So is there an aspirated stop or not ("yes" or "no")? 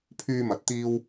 yes